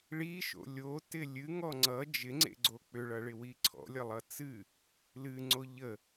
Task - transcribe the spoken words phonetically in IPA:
ɭ i ʃ o̰ lʲ o t ɪ lʲ ɨ ŋ ɔ ŋ͡ǀ ʌ d͡ʒ ɪ ŋ͡ǀ ḛ ɡ͡ǀ o k͡p ʏ ɭ ʌ ɭ ɪ w i ǀʰ ɔ̰ lʲ ʌ lˠ ʌ t͡s ɨ | l ɨ ŋ͡ǀ o ʎ ə

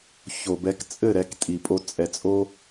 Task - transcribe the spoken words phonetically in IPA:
ç o˨ b ɛ˧ k t͡sʼ ɘ˦˨ ɾ ɛ˧ k tʼ i˨ pʼ o˧ t͡sʼ ɛ˨ t͡sʼ o˧

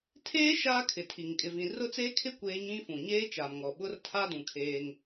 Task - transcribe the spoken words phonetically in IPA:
tʰ eː˦ ʃ aː˦ kʰ ɪ˨ tʰ i˨ ŋ kʼ ɪ˨ v ĩ˨ r ʊ˦ t͡s eː˦ kʰ ɪ˦ kʷ eː˦ ɲ ĩ˦ f ũ˨ ɲ eː˦ t͡ʃ a˨ m ŋ ɔ˨ ɓ ʊ˦ r tʰ a˦ d ũ˨ kʰ eː˦ ŋ

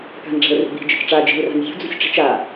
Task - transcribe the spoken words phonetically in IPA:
k a̤ n ɖ͡ʐ a̤ l r ṳ b i̤ d͡ʒ ɘ t͡ʃ ʈ͡ʂ a d͡ʒ i̤ l r a̤ n zʲ ṳ d͡z ṳ sʲ ʈ͡ʂ i̤ t͡ʃ a

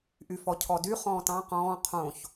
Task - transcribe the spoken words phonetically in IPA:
ʔ y f ɔ cʰ ɔ d y χ ɔ̃ː t ɑ̃ q ɔ̃ː qʰ õ ç

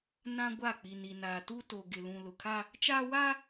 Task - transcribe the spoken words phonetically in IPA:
n ã˦ ɡʷ a˦˨ k͡p i˨ n i˨ n aː˨ t u˦ t o˨ ɡ ɪ˨ l ũ˨ l ʊ˨ kʰ a˦ | t͡ʃ aː˦ w a˦

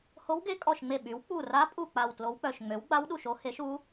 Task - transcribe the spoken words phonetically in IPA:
h o˧˥ w ɡ e˧˥ kʼ ɔ˧˩ ʃ ŋ͡m e˧˩ ɓ y˩˥ w k͡p u˧˩ r a˧˥ pʼ u˧˩ k͡p a˧˩ w t l o˧˥ w k͡p œ˧˩ ʃ ŋ͡m ø˩˥ w ɡ͡b a˧˥ w ɗ u˧˩ ʃ o˧˥ h e˩˥ ʃ u˧˥

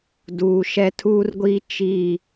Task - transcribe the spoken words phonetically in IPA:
d uː˨ ʃ ɛ˦ tʰ uː˦ r ɡʷ iː˦ t͡ʃ i˦˨

